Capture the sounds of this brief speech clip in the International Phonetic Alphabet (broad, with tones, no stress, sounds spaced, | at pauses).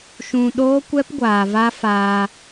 ʃ ũ˧ ɗ oː˦ kʷ ɛ˦ p ɡʷ aː˨ v a˦ f aː˧